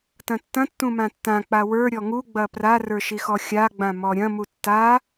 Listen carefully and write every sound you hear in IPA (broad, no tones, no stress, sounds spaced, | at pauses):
t ɐ̃ tː ɐ̃ tː ũ m ã tː ã k͡p a w ə˞ ɾʲ ɔ ŋ u ɡ͡b ɐ p r a r ə˞ ʃ i x ɔ xʲ a ɡ͡b ã m ɔ ɾʲ ɐ̃ m u tː a